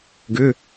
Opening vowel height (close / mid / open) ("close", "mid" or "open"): close